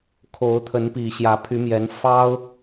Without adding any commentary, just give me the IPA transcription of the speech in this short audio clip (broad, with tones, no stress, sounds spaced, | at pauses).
kʰ o˨˦ ʊ̯ t̪ʰ ə˨˦ n p i˨˩ ɕ j ä˨˦ pʰ y˨˦ m j ɛ˨˦ n f ɑ˦ ʊ̯